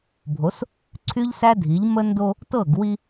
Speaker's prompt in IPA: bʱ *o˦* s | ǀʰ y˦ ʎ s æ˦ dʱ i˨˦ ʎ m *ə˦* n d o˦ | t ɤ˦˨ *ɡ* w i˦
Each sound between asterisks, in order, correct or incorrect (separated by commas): incorrect, correct, correct